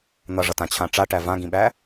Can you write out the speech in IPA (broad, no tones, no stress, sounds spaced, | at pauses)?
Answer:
n̪ ʌ ʐ ʌ t ã t͡ɕʰ ã ʈ͡ʂ a ʈ æ v ã ɡ ĩ ɓ æ